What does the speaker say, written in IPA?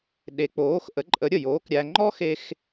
ɗ e˨˥ k͡p oː˨˥ x ʔ ə˨˥ ǃʼ ə˨˥ ɾʲ ə˥˩ j oː˨˥ k ɾʲ æ˧ ŋ͡ǃ ɔ˥ x e˧ x

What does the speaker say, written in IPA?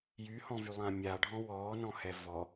j y h ɔ̃ v y lˠ ãː mʲ a ɖʱ ɔ̃ w ɔː n ɔ̃ h ɛ v ɔ

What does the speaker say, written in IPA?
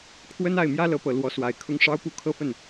kʰ w ə˥ n a˥˩ ɪ̯ m j ä˥ l ɤ˧˥ p ɤ˨˩ l w ɔ˧˥ s w a˨˩ ɪ̯ kʰ ʊ˥ ŋ ʂ ɑ˥ ʊ̯ p u˥ kʰ ɤ˥˧ f ə˥˩ n

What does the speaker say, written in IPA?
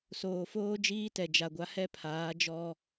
s oː˨ f oː˦ d͡ʒ iː˦ t ɛ˨ d͡ʒ a˨ ɡʷ a˦ h ɛ˦ pʰ aː˨˦ d͡ʒ ɔ˦

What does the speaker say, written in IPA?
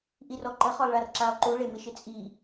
ʔ i r ɔ ǃ ə χ ɔ lˠ ɭ a r ǁ a lˠ ǃ u ɭ e m ɪ ʃ ɪ t͡sʼ i

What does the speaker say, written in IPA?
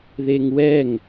ð e ŋ w ɛ ŋ

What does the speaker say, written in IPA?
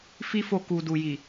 f i˦ f o˧ k u˨ d u˨ j i˨

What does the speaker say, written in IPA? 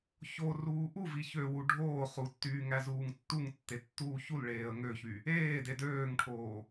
ç o r uː ʔ u v i ç ø w u ɖʱ oː χ u tː yː ŋ æ z uː ŋ tː u ŋ tː e tː uː ç u l ɭ eː ə̯ ŋ ø ç y | eː d e d øː ŋ ʈʰ oː

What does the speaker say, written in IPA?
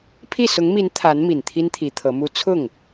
pʰ i˥˩ s ʊ˧˥ ŋ m i˧˥ n t̪ʰ a˧˥ n m i˨˩ n t̪ʰ i˥ n t̪ʰ i˧˥ t̪ʰ ɤ˧˥ m u˥ t͡sʰ ʊ˥˩ ŋ

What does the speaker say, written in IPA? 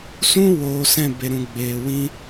s ũ˦ w oː˨ s ɛ̃˦˨ b e˨ ɾ ũ˨ ɡ͡b eː˨ w ĩ˧

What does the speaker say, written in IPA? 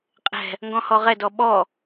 qʼ ɛ̤ | ŋ ɡ ɔ̃ h ɔ ʁ ɛ d ɔ ɓ ɔ

